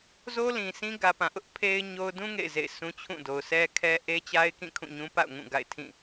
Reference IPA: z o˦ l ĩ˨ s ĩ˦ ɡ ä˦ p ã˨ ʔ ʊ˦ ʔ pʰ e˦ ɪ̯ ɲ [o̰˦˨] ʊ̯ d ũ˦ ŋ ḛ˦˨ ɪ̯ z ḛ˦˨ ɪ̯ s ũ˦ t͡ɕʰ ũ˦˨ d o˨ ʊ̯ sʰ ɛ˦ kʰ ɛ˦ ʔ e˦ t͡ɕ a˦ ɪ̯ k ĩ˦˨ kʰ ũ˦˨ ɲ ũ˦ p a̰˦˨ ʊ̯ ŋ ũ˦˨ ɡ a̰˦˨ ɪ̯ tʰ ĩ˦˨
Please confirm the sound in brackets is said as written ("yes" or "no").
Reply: no